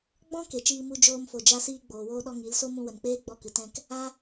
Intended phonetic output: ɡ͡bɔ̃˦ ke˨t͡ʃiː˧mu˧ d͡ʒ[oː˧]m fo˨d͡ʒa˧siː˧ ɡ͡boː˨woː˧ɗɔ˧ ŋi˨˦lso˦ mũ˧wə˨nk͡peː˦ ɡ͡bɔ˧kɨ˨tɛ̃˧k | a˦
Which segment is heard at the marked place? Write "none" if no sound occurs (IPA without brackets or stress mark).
oː˧